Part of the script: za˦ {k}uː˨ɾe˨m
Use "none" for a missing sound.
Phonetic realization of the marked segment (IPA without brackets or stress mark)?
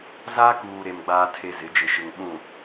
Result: k